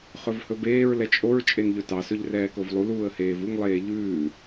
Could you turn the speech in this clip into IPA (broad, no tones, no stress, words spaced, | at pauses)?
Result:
χɵvhɵbeːɹ lɛt͡ʃʼoɹ t͡ʃʼenʎɵtɑsɵʎ rɛːkovlˠuluːə̯ heːvuŋlˠeː ʎʉː